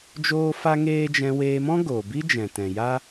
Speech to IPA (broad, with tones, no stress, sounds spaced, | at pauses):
d͡ʒ oː˦ f a˦ ŋ eː˦ d͡ʒ ɛ̃˧ w eː˧ m ɔ̃˦ ɡ oː˨ b i˦ d͡ʒ ɛ̃˨ t ɛ̃˨ j a˦